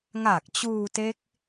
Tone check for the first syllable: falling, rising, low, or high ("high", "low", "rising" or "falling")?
low